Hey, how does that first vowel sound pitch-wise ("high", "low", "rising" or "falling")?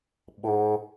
high